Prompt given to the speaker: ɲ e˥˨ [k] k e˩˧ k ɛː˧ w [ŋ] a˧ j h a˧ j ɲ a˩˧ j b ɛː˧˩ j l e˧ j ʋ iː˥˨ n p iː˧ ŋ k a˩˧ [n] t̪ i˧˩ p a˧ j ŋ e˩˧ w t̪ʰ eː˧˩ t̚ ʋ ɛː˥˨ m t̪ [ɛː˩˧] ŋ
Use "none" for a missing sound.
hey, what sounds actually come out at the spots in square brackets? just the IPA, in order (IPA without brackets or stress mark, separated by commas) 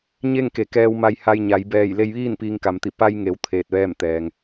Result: ŋ, m, m, ɛː˩